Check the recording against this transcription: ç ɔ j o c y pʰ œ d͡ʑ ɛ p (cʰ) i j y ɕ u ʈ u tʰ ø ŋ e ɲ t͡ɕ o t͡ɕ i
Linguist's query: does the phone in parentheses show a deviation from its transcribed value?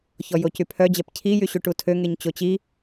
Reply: no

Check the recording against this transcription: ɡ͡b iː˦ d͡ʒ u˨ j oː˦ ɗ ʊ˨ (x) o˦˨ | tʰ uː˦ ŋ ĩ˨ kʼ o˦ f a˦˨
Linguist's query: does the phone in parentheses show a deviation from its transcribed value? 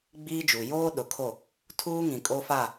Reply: yes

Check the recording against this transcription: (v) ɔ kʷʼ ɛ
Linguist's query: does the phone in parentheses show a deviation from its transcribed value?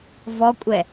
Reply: no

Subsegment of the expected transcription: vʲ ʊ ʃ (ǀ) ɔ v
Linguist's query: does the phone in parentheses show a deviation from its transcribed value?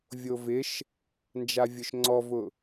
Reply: yes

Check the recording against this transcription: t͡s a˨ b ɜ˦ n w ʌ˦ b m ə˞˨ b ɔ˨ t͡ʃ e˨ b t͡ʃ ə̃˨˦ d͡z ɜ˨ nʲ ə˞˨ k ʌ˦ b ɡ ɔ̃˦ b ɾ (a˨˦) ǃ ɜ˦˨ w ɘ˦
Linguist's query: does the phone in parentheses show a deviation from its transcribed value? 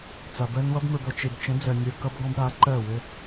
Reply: no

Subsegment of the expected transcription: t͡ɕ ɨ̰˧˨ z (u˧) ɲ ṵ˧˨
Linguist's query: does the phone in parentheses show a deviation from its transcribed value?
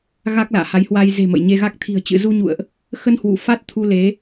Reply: no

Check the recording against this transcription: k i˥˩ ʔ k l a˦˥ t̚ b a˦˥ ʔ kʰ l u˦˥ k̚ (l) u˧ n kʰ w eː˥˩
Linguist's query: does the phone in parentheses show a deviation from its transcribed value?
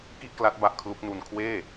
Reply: yes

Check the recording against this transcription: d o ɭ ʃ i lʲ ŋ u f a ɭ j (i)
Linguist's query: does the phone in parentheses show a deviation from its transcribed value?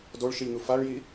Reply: no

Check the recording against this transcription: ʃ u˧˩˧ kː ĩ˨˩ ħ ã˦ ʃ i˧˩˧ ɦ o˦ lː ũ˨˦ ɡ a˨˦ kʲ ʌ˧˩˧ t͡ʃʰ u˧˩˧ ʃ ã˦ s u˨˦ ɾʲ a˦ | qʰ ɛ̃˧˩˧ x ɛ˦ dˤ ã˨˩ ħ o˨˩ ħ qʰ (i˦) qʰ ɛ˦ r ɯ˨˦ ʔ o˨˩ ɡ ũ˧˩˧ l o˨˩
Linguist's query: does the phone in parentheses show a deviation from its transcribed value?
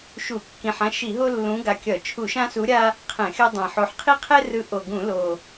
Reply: no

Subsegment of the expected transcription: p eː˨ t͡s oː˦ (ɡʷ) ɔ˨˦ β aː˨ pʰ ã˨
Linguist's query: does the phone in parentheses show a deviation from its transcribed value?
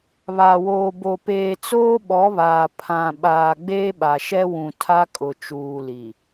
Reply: yes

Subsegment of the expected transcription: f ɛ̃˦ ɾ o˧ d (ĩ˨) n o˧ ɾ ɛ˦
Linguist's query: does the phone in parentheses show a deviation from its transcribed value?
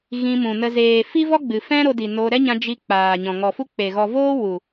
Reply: yes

